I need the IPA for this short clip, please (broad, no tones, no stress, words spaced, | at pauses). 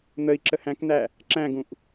n̪əi̯ ǁəhæ̃kn̪æ | ǁæ̃ɡũʔ